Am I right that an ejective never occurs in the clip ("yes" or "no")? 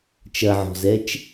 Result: yes